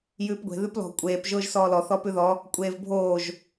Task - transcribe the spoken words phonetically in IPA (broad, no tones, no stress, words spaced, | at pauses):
jʉːpɡʷe̤ ðʉplɔ̤ kʷʼeːp ʒʊːʒsɔːlɔ θɔpʉðɔ | kʷʼeːvbʱoːʒ